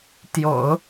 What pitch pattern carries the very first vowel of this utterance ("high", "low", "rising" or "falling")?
low